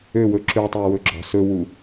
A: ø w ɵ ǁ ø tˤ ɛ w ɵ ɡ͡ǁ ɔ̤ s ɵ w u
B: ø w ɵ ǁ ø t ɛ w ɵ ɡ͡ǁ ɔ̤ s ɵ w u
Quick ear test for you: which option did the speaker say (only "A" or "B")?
A